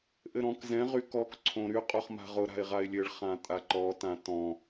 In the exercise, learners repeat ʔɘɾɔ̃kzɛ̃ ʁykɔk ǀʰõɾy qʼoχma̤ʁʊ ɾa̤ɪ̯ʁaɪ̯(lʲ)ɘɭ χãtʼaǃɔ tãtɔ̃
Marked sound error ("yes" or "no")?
no